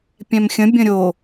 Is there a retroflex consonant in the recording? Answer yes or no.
no